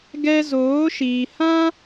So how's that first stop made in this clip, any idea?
plain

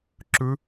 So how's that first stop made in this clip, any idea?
click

